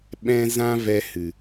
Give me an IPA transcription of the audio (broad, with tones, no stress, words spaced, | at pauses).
ɓɛ̃˧ zã˦vɛ˧hɨ˨